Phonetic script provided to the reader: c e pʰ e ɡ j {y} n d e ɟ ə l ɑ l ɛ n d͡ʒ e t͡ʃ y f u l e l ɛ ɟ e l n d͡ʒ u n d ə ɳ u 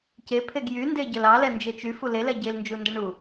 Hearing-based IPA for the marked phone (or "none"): y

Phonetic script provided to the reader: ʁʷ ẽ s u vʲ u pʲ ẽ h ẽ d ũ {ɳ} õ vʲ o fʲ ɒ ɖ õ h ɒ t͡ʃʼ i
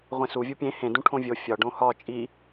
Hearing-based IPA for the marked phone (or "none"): ʈʰ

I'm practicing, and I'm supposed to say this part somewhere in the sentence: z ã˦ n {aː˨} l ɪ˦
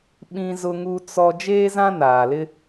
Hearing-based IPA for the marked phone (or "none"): aː˨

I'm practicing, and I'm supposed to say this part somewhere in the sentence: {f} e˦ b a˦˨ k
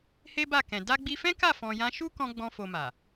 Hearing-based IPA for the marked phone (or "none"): h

